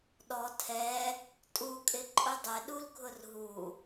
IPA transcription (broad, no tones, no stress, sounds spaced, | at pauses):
ɗ ɔ tʰ ɛ | tʼ u kʼ ɪ ǃʼ ʊ dˤ ɪ ɗ u l ɡʱ ʊ r ɦ u